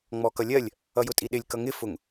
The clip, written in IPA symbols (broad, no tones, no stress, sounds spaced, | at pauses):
ŋ͡m ɔ k ʌ lʲ ɜ lʲ | ʌ j ʊ tʼ i ɗ ɪ lʲ k ʌ ŋ ɪ f ʊ ŋ